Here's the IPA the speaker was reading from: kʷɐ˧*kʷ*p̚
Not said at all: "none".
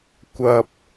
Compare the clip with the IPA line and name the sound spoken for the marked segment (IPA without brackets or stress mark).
none